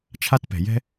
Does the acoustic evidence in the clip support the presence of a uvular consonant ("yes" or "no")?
no